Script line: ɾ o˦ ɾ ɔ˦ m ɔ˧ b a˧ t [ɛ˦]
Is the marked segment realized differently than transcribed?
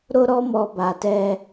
no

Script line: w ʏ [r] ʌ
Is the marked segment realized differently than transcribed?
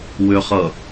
yes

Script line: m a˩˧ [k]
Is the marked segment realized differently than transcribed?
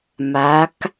no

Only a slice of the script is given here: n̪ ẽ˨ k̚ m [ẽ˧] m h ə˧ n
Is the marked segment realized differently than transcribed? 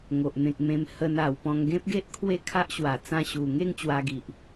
no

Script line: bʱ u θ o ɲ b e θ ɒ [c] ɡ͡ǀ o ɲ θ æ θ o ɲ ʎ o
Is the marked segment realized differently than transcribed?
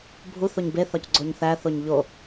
no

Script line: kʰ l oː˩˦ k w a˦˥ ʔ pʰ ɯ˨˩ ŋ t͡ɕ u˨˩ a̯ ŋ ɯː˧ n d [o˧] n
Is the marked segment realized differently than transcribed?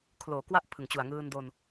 no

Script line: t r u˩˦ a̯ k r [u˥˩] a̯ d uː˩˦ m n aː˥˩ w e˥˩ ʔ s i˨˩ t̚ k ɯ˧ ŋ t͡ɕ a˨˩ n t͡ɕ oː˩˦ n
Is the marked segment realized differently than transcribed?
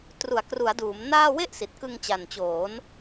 yes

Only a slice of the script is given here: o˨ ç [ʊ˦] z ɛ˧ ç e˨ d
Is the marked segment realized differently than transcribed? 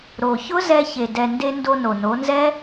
no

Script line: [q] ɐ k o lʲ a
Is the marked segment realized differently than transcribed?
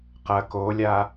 no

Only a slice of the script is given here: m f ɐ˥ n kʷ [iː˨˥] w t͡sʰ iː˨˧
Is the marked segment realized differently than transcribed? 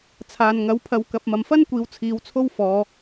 yes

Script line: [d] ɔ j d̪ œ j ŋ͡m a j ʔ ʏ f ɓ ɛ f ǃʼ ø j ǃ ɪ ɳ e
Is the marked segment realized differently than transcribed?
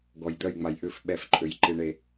yes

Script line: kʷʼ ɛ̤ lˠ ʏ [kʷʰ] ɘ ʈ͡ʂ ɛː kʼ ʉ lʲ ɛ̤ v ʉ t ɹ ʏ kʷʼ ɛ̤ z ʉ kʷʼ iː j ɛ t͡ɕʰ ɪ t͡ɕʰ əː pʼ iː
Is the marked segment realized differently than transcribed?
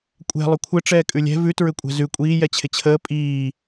no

